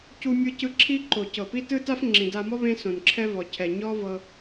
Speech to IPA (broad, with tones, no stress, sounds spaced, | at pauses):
c u˧ mʲ ɯ˧ c ɯ˧ ǁʰ i˥ ǃ o˩ c ɤ˩ p i˥ t ɯ˥ t a˥ f ŋ͡ǁ ĩ˩ d a˧ m ɔ˥ β ẽ˥ s õ˩ n ǁʰ ɛ˥ v ɔ˩ cʰ ɛ˩ ɲ ɔ˥ v ɤ˧